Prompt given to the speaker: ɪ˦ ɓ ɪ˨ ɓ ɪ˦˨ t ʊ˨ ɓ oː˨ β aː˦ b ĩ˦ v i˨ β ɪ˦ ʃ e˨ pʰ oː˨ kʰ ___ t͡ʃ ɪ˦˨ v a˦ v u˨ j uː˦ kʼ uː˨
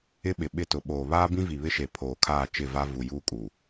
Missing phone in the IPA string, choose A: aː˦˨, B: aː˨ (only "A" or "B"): A